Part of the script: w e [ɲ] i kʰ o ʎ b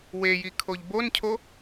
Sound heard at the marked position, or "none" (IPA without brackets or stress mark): j